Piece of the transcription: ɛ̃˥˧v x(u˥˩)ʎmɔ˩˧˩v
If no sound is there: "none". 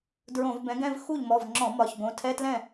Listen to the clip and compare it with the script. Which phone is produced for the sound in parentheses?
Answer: u˥˩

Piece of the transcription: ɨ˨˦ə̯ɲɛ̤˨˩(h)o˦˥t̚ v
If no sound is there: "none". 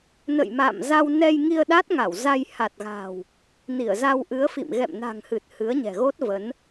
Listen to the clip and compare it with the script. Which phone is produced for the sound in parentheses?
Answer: ɣ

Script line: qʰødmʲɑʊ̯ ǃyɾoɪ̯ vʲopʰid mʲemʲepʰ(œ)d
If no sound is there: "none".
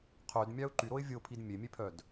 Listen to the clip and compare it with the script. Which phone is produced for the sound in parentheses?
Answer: œ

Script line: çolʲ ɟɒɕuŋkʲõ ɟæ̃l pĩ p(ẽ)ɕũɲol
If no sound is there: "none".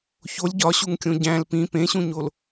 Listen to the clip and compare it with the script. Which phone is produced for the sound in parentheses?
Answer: ẽ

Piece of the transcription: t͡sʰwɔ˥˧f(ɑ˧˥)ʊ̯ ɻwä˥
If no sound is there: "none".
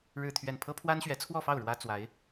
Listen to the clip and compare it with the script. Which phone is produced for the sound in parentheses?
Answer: ɑ˥˩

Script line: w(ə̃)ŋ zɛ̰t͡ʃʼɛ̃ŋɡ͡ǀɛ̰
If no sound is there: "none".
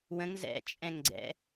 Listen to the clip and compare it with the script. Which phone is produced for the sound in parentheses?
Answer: ə̃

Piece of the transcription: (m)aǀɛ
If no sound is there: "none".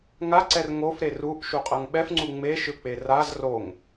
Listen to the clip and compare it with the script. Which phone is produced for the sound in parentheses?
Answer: ŋ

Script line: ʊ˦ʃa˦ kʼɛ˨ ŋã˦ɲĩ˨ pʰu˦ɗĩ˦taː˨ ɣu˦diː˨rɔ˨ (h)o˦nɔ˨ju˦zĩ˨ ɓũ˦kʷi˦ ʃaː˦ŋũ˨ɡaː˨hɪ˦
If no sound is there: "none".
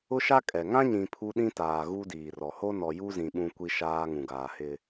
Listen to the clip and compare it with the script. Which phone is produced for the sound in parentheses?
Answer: h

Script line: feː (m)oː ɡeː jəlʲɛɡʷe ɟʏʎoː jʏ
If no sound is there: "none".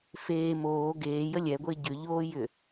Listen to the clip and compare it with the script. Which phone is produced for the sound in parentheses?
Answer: m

